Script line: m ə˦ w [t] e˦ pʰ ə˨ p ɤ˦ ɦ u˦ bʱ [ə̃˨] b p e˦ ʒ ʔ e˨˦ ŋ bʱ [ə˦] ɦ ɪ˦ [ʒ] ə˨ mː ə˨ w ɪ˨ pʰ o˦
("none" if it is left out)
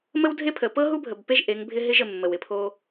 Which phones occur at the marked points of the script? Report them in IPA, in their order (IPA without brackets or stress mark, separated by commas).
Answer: dʱ, ə˨, ɪ˦, ʒ